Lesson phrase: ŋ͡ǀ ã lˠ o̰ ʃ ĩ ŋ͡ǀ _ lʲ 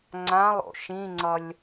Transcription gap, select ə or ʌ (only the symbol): ʌ